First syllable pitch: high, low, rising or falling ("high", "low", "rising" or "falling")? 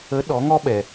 rising